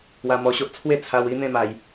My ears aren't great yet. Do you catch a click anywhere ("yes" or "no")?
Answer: no